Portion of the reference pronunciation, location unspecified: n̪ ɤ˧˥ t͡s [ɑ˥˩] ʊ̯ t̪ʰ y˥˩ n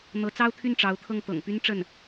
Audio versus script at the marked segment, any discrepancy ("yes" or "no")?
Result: yes